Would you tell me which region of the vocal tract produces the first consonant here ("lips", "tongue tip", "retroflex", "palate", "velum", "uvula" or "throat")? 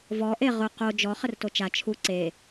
lips